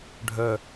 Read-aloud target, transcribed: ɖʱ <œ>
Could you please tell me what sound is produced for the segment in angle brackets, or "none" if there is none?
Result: œ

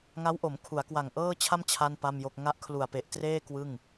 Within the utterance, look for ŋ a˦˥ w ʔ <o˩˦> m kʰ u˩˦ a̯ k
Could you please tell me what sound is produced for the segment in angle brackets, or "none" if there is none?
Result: o˩˦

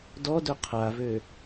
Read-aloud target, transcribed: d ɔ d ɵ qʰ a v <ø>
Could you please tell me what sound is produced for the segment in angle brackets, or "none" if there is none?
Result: ø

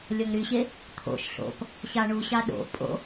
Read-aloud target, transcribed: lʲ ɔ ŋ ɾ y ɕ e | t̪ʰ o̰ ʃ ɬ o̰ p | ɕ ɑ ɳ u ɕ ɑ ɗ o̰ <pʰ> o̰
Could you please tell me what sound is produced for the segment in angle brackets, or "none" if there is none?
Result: pʼ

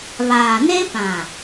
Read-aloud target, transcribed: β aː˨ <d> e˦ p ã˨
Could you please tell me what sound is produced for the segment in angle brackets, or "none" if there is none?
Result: n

